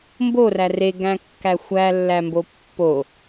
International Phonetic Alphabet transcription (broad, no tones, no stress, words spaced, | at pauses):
mboræ reɡæ̃kːæ xʷælːæmbo pːo